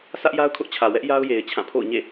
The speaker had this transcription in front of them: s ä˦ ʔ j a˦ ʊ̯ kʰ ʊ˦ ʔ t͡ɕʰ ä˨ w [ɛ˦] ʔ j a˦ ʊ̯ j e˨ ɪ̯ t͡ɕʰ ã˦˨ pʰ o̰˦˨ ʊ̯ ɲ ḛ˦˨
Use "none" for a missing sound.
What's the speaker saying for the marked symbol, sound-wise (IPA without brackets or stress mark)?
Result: ɛ˦